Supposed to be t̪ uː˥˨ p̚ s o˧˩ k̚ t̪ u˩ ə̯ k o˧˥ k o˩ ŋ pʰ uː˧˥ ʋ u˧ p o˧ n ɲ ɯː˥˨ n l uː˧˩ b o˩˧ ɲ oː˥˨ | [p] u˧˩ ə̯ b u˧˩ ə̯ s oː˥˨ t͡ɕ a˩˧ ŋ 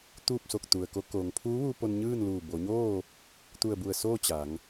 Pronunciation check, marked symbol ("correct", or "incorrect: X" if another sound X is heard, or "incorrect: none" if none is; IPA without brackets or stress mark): incorrect: t̪